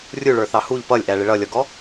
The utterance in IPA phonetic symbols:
rʲuɭə˞θɑ huʎ pʌlʲʔæɭɪ ɭʌlʲɔɡɔ

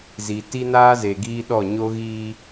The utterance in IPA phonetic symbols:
zi˨ ti˦naː˦ze˨ ɡiː˦ɗɔ˦˨ ɲo˦ɣiː˦

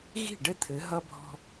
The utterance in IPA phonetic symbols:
ɣi̤˦˨ɖɘ˦t̪ʰɘ˨˦ ɦʌ˦bʱɔ̤˦

